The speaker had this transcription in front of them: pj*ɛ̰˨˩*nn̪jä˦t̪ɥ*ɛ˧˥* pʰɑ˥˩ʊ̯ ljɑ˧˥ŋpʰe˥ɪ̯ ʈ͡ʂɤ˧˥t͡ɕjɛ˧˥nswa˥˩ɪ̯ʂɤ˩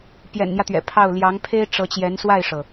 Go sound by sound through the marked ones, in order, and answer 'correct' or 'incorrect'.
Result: correct, incorrect: ɛ̰˨˩

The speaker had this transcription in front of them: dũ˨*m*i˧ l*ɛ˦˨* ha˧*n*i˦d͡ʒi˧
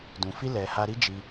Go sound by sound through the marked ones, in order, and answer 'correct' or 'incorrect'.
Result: incorrect: f, incorrect: ɛ˨, incorrect: ɾ

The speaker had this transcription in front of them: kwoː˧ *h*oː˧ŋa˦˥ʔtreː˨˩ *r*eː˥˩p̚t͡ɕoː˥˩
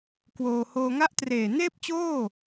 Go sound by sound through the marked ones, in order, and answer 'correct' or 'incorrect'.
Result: correct, incorrect: n

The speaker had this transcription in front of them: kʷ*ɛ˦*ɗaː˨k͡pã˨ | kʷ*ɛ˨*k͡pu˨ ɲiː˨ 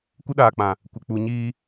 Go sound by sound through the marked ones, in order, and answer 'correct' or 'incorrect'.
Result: incorrect: ɪ˦, incorrect: ɪ˨

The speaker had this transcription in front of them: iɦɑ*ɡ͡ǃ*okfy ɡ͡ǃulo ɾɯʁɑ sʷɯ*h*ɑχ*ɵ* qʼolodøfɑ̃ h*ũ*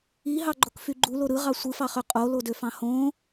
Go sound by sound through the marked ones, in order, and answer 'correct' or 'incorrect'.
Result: correct, incorrect: f, incorrect: ø, incorrect: õ

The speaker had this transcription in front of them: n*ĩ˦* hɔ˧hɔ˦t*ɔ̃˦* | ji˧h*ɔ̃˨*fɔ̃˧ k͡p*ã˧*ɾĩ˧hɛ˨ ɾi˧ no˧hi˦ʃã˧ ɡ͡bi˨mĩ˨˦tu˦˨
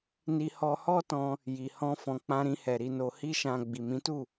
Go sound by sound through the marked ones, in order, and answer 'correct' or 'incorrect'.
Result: incorrect: i˦, incorrect: ɔ̃˧, incorrect: ɔ̃˦, correct

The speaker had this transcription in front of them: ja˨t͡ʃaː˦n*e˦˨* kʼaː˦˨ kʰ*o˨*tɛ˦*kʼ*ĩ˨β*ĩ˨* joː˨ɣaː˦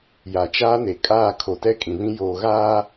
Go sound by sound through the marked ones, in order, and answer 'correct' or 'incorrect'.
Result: incorrect: e˨, correct, correct, incorrect: ĩ˦

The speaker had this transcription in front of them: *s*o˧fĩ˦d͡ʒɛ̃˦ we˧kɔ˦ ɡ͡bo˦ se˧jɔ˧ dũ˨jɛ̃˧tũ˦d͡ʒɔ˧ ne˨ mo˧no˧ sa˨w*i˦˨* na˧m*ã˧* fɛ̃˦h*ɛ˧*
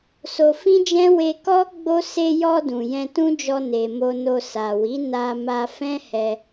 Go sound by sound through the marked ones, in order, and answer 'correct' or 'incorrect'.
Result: correct, incorrect: i˨˦, incorrect: a˧, correct

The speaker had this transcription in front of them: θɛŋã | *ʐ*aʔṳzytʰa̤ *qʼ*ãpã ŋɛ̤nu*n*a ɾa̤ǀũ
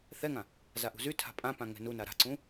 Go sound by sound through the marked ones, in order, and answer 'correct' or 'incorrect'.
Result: incorrect: z, incorrect: pʼ, correct

